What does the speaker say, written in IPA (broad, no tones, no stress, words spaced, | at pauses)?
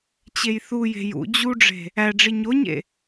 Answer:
t͡ɕejθuje̤ jṵ d͡ʑuɖ͡ʐe̤ | æɖ͡ʐi ɲoɲḛ